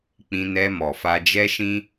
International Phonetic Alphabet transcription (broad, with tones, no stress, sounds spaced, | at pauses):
k͡p ĩ˧ n ɛ˧ m ɔ˨ f a˧ d͡ʒ ɛ˦ ʃ ĩ˦